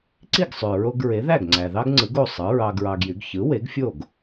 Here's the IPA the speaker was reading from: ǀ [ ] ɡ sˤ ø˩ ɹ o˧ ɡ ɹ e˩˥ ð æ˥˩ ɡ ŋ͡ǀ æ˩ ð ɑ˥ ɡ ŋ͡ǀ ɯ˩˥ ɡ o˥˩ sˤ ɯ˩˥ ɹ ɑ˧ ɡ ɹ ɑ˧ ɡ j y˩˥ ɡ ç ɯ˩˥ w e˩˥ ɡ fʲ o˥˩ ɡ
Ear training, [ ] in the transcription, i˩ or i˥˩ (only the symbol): i˥˩